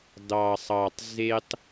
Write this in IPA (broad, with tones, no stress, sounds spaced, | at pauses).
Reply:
d ɑ˨ sˤ ɑ˨ tˤ z e˦ tˤ